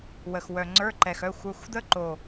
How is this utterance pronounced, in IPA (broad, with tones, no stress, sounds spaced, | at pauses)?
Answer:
w ə˨˩ x w œ˨˩ ŋ͡ǀ ə˞˧˥˧ ǃ ɛ˨˩ x œ˧˥˧ xʷ ə˞˧˥˧ xʷ d̪ ə˦˥ ǃ o˨˩